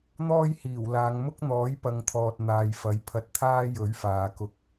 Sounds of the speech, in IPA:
n̪ɔː˥jhiː˨˩wlaː˨˧ŋ mʊ˥k̚n̪ɔː˨˥j pɐ˨˧ŋt̪ʰɔː˨t̚ n̪aː˨˧jfɐ˨˥jpʰɐ˧t̚ t̪ʰaː˥jɵ˨˥ɥfaː˨˧kʊ˧k̚

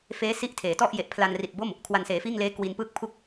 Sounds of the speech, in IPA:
feː˦˥si˦˥ʔ tʰeː˩˦ tɔ˥˩ʔ je˨˩ʔpʰla˧nri˨˩t̚bo˥˩m | kʰwa˨˩nseː˩˦fiː˥˩ŋleː˦˥ kwi˧npɯː˥˩k̚pʰu˥˩k̚

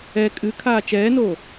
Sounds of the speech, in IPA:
ɛ kʼɨkʰaː t͡ʃɛːnoː

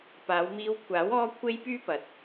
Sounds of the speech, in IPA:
paː˨˧wmiː˧wkʷʰaː˨˥w ɔː˥kʷʰe˥jpyː˥pɐ˨˥t̚

